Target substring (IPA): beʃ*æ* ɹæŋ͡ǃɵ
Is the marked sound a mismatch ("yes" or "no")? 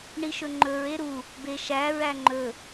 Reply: no